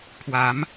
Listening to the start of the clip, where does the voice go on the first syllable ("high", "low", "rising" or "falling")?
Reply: rising